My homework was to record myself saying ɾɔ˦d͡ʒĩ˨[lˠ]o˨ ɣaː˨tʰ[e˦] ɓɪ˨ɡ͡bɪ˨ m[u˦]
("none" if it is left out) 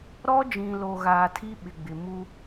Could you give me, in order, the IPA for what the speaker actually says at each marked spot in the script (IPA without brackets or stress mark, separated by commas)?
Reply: l, i˦, u˦